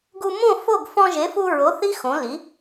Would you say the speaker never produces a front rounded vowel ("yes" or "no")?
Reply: yes